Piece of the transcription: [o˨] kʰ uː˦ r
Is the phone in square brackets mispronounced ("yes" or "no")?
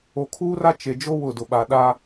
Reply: no